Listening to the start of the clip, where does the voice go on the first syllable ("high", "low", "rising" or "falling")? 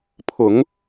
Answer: low